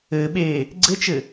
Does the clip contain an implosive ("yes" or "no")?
yes